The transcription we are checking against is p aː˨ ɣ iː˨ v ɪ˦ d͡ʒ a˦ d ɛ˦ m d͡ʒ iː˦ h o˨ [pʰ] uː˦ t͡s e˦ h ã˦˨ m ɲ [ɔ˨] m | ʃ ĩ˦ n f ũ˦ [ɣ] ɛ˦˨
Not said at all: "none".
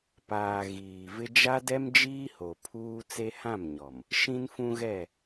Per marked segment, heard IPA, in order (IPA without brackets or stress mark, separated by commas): pʰ, ɔ˨, ɣ